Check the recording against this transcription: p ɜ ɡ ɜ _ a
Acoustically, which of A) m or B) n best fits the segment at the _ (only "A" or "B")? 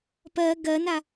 B